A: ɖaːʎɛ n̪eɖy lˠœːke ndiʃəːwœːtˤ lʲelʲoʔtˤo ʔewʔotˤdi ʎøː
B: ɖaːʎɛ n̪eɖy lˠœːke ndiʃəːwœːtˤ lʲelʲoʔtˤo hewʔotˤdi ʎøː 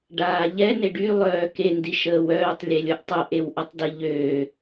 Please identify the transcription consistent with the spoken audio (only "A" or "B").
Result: A